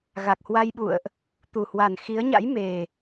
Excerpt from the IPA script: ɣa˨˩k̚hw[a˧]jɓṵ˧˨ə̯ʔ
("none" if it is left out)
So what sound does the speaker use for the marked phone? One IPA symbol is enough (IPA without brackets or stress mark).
a˧